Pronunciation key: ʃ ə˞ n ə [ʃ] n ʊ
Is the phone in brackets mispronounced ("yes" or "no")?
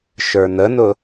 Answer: yes